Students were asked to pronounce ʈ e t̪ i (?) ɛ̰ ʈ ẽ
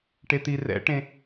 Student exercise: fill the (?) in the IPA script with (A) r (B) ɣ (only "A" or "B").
A